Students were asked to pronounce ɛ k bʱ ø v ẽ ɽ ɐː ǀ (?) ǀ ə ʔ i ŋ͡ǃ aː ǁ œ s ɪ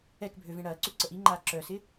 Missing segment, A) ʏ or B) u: A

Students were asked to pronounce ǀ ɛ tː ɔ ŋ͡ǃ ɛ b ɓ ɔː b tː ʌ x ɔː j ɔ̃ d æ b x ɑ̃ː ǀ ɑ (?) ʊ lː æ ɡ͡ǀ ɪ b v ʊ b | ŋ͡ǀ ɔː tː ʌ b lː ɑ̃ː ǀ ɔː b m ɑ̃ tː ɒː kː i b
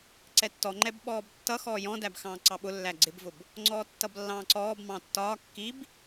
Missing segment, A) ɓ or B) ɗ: A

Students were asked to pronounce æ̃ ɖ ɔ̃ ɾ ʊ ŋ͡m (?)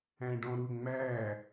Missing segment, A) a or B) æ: B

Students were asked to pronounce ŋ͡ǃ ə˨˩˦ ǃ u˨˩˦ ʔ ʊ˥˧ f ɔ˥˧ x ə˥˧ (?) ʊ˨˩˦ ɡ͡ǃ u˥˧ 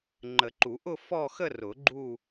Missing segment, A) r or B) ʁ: A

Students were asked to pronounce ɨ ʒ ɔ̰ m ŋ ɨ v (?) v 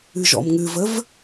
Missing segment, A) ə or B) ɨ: A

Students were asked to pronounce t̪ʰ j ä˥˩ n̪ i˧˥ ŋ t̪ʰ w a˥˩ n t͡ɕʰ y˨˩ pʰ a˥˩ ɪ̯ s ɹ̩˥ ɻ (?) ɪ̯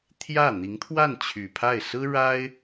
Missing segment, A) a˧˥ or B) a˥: B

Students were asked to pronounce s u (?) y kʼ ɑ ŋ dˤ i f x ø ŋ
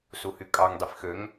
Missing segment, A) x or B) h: B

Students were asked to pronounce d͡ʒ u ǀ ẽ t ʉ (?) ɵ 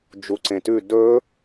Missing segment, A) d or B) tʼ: A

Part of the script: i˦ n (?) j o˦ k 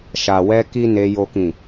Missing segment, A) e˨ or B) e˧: B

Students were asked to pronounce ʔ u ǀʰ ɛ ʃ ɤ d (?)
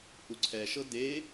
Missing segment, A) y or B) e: B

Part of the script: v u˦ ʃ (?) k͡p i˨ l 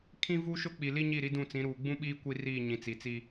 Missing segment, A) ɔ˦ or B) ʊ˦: B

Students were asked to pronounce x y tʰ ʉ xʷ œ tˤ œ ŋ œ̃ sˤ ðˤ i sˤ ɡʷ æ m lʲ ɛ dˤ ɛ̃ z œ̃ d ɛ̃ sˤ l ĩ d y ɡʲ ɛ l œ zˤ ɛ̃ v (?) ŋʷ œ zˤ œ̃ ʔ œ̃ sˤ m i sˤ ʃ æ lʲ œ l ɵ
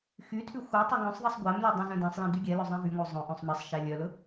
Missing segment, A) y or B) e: A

